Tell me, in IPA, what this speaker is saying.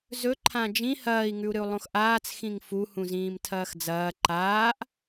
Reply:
z ɵ ǃʰ ã d͡ʒ ĩ h ɐː i̯ ŋ ʉ u̯ ɾ ɨ u̯ lˠ õ x ʔ aː t͡s x ĩ ŋ f u h ũ z ĩː m tʰ ɐː x d͡z ɐː ǃ aː ʔ

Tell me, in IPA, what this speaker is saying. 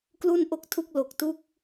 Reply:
k l u˥˩ n ʔ o˥˩ k̚ tʰ u˥˩ k̚ l o˨˩ k̚ t u˥˩ k̚

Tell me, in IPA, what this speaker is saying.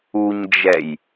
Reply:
u ɲ d͡ʒ ɛ j

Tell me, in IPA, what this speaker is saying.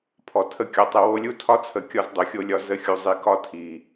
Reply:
pʰ ɔ˨ tʰ ə˧ kʲ ɔ˨ tˤ ə˧ w o˧ lʲ u˦ tʰ ɒ˦ t͡sʰ ə˨ kʲ ɒ˦ z dˤ o˨ xʲ o˦ lʲ ɒ˧ z ə˧ xʲ u˨ zˤ i˨ k ɒ˦ tʰ i˨

